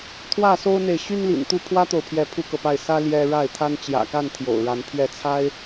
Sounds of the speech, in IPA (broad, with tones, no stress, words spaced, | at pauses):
t̪ʰwä˥˨so˦ʊ̯n̪e˨ɪ̯ ɕy˦nlḭ˨˩nt̪u˥˨ pʰwä˦t̪o˨ʊ̯ pʰjɛ˨˦ pʰu˦kɤ˨pa˥˨ɪ̯ sä˦ ljɛ˦ ɻa˥˨ɪ̯t̪ʰa˦n t͡ɕjä̰˨˩ka˥˨n t̪ʰjo̰˨˩ʊ̯ɻa˨˦n pʰɥɛ˨˦t͡sʰa˦ɪ̯